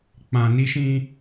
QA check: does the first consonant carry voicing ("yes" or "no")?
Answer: no